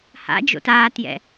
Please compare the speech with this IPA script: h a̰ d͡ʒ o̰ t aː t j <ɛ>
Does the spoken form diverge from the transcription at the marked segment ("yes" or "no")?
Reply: yes